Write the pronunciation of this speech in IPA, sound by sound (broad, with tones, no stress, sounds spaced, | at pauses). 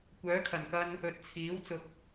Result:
kʷ œː˨˥ kʰ ɐ˨˩ n k ɐ˧ n | ɵ˨ t̚ t͡sʰ iː˨˥ w t͡s ʊ˨ k̚